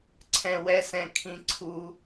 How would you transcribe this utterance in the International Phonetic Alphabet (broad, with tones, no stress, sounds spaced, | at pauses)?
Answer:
ǀʰ ɛ̃˩ w ɛ˨ s ɛ̃˩ kʰ ĩ˨ ǀʰ u˨